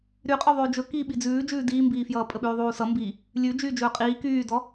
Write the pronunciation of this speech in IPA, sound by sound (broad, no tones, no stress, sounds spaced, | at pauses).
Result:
ɾ y qʼ ɵ ðˤ ʉː d͡ʒ ɵ k iː ɓ i d͡z ʉː d͡ʒ ʉː d iː m b iː f j ʌː pʼ ə ɓ ʉː ðˤ uː s ʌ m b i | lʲ ʉ d͡ʒ yː d͡ʒ ɵː qʼ iː k yː d ɔ